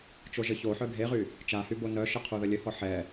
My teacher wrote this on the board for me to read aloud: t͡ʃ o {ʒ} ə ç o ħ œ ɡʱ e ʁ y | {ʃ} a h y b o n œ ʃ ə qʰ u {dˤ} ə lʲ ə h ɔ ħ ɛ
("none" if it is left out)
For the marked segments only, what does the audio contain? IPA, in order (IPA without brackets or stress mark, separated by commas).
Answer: ʒ, t͡ʃ, ð